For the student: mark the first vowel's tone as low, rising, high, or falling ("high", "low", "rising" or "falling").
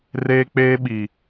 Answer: high